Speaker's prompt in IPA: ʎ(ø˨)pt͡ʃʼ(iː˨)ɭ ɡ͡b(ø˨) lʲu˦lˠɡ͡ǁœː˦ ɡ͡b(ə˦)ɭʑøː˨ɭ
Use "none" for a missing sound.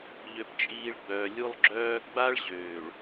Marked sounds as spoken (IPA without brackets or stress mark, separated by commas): ø˨, iː˨, œ˨, a˦